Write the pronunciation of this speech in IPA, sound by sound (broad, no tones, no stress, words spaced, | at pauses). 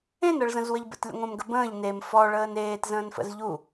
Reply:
ẽnɤɭzə̃zwəʎ bə̰tlʲə̰ŋʷə̃ːmɡə bə̃ːʎ nem fɔɭəːn eːtzə̃ːnfə̰z ʎu